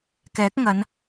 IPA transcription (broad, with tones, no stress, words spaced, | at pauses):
kɛː˨˥k̚ŋɐ˨˧n